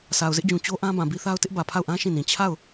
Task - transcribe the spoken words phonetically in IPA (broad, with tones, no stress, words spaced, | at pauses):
sa˨ʊ̯zɪ˦ʔd͡ʑũ˨ t͡ɕo˦ʔã˦ bã˨bi˦θa˦ʊ̯ tɪ˦ʔbä˨pʰa˦˨ʊ̯ʔã˦ ʃĩ˦˨nĩ˨ t͡ɕʰa˦˨ʊ̯